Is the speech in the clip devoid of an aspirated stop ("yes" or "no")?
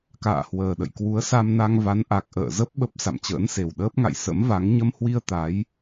yes